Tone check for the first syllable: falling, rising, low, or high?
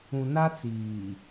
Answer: low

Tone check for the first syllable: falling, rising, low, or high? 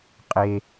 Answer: low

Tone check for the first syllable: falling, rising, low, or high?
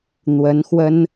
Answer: rising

